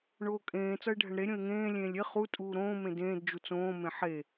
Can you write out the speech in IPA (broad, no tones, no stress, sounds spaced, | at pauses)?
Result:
ɳ oː kʼ ẽː t͡s ʌ ɪ̯ ɖʱ ɛ ɳ ɾ e ɾʲ õ ɪ̯ ŋ ẽː lʲ ẽː lʲ e χ u tʼ uː ɾ õː m ẽ d ẽː d d͡ʒ u t͡s õː m ẽ ħ e